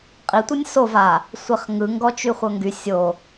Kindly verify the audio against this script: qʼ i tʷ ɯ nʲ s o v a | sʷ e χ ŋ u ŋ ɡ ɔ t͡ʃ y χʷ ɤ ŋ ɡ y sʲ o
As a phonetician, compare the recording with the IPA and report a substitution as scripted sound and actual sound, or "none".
u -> ɯ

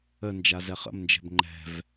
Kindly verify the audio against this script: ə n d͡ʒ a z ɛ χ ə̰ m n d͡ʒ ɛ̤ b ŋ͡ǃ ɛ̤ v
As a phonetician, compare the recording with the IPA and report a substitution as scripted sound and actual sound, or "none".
none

